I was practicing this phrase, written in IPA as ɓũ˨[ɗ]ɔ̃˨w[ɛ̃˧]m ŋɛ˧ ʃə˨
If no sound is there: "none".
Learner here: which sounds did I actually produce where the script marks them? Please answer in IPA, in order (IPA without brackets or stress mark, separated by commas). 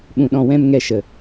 ɗ, ɛ̃˧